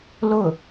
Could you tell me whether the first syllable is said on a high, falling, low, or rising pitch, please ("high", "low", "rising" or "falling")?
falling